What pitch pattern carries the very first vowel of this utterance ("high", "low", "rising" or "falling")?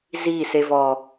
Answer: falling